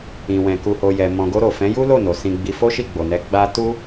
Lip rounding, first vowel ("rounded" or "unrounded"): unrounded